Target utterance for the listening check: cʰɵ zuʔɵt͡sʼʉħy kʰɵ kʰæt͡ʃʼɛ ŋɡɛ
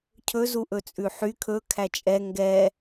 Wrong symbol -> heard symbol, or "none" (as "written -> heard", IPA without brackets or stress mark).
none